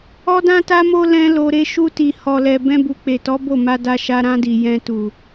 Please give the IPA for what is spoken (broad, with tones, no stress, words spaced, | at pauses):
ɔ˦dã˦ta˦mo˦ lɛ̃˦lo˧ɾe˦ ʃu˧ti˨hɔ˨lɛ˨ bɛ̃˧bu˨k͡pe˨tɔ˨˦ bo˦˨ma˧da˧ʃa˧ ɾã˧di˨ jɛ̃˧ tu˨